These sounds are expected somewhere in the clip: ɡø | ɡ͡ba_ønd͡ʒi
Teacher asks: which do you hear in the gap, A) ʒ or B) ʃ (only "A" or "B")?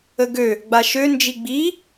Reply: B